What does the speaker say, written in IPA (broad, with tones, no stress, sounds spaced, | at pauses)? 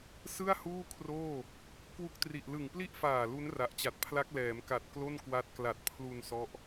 s ɯ˥˩ a̯ h uː˥˩ kʰ r oː˥˩ | k w u˦˥ k̚ t r i˨˩ ʔ l ɯ˨˩ ŋ p l i˥˩ ʔ f aː˨˩ l u˦˥ n r a˨˩ ʔ t͡ɕ a˨˩ t̚ pʰ l a˦˥ k̚ l ɛː˩˦ m k a˨˩ t̚ k l o˥˩ n k w a˦˥ t̚ k l a˨˩ t̚ pʰ l u˧ n s ɔ˦˥ ʔ